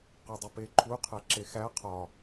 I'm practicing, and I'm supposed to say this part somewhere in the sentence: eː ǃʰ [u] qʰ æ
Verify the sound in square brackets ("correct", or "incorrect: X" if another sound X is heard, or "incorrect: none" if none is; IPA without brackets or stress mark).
correct